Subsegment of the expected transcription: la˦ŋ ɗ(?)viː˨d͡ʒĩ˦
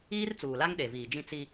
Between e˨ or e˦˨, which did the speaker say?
e˨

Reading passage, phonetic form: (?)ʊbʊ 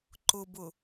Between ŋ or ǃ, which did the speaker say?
ǃ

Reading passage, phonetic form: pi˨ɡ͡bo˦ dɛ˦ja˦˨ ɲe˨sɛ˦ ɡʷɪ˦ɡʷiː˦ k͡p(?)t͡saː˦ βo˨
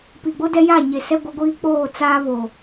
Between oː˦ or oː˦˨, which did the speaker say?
oː˦˨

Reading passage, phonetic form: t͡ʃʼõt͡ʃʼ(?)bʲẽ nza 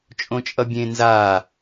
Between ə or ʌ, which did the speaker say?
ʌ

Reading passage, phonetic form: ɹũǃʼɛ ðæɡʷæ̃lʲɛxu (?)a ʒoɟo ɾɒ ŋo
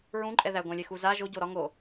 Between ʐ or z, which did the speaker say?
z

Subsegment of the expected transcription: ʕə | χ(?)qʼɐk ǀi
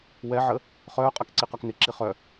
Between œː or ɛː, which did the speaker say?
œː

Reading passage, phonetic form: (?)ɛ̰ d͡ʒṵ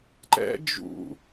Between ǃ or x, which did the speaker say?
ǃ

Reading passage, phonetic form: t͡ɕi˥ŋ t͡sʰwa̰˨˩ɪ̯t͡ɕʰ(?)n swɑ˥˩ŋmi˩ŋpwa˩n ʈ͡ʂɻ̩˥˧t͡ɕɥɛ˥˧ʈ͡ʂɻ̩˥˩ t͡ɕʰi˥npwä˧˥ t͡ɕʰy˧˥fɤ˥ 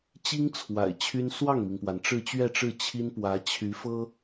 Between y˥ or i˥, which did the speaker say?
y˥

